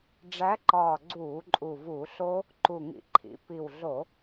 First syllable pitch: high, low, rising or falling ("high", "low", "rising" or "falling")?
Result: rising